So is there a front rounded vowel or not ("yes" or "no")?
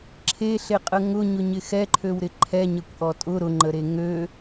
yes